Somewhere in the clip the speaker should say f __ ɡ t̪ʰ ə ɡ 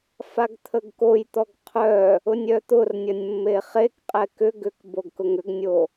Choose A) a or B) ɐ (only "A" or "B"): A